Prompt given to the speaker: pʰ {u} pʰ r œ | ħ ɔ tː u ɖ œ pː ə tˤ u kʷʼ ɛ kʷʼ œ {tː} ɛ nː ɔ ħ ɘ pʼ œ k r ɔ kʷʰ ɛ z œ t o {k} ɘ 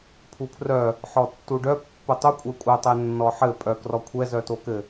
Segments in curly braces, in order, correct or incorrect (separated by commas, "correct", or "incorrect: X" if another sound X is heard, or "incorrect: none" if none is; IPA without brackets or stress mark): correct, incorrect: tˤ, correct